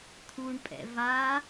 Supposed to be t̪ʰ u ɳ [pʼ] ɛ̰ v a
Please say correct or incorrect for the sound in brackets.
correct